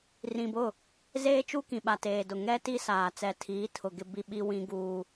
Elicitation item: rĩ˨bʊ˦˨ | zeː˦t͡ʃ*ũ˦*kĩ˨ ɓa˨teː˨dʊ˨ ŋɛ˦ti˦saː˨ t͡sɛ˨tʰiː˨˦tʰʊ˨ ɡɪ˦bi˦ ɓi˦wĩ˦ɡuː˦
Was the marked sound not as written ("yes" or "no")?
yes